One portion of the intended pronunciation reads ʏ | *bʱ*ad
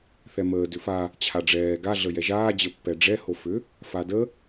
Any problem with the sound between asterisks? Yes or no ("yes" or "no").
yes